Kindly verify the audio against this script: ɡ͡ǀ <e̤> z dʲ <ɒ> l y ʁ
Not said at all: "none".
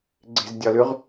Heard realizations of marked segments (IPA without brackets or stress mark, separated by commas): e̤, ɒ